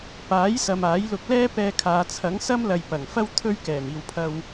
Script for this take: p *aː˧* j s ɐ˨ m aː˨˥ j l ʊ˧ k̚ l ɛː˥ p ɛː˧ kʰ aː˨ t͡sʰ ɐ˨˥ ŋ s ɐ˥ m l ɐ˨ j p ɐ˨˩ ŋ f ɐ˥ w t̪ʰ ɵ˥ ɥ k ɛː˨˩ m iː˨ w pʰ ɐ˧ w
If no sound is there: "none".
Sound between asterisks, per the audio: aː˨˥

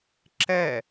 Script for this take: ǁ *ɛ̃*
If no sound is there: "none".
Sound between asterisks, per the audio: ɛ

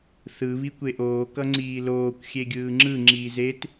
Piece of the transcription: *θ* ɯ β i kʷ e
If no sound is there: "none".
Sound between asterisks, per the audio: θ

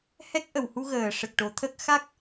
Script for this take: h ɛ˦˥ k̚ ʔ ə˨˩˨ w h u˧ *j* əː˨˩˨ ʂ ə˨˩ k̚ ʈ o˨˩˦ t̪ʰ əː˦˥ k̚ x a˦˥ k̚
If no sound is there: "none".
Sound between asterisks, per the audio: ɣ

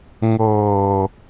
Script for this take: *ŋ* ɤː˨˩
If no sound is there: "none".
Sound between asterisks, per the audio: ŋ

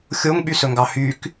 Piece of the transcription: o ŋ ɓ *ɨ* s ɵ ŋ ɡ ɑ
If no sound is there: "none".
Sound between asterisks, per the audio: y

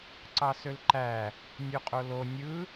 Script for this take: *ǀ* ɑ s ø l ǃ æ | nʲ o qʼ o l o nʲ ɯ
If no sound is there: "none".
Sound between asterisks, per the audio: ǀ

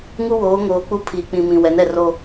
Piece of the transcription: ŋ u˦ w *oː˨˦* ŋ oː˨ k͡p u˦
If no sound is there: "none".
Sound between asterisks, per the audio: oː˨˦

